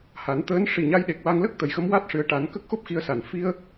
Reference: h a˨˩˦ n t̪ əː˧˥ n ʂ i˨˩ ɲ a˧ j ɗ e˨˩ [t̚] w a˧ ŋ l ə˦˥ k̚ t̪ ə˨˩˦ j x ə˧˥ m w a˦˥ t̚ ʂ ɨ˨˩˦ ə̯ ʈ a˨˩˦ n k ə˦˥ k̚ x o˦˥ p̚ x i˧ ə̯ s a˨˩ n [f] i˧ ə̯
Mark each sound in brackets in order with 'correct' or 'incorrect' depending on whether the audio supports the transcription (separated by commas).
incorrect, correct